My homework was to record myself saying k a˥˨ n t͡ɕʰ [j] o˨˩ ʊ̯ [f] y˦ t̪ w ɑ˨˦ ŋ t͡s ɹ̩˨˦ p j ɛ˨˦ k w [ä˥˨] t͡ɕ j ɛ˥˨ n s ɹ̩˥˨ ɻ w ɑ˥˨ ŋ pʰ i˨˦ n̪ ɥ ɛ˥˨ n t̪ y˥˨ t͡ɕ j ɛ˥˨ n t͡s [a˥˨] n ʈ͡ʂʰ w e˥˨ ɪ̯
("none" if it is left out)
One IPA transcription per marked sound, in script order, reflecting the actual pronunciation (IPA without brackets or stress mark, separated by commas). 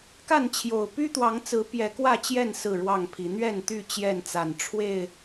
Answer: j, p, ä˥˨, a˨˩